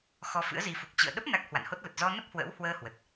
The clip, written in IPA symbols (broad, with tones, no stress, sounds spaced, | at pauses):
x ɔ˧ f ɨ̰˧˥ ə̯ z i˨˦ f u˨˩ k̚ t͡ɕ ɨ̰˧˨ ə̯ ɗ ə˦˥ p̚ n a˦˥ k̚ h w a̰˧˨ n h o˦˥ t̚ l ə˨˩ t̚ z ɔ˧ n ə˦˥ p̚ h w ə̰ː˧˥ w h w əː˧ h w ə˨˩ t̚